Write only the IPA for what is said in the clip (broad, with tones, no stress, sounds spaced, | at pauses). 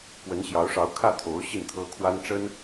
k w ə˧˥ n ɕ j ɑ˧˥ ʊ̯ ʂ ɑ˧˥ ʊ̯ kʰ ä˥˩ t̪ʰ o˧˥ ʊ̯ ɕ i˥˩ n t̪ʰ ɤ˥ kʰ w a˥ n ʈ͡ʂ ə˥ n